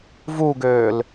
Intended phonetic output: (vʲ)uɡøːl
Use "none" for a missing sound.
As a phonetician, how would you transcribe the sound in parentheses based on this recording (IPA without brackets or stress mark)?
v